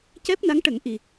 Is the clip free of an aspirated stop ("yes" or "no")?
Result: yes